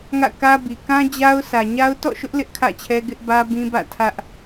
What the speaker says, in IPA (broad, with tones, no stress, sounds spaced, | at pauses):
ŋ ä̰˦˨ k ä˦ b i˨ k ã˦ d͡ʑ a˦ ʊ̯ sʰ ä˨ ɲ a˦ ʊ̯ t ɔ̰˦˨ ʃ ʊ˦ ʔ l ɪ˦ ʔ kʰ ä̰˦˨ t͡ɕʰ ɛ˦ ɡ ɪ˦ ʔ b ä˦ b ĩ˦ b ä̰˦˨ tʰ ä˦ ʔ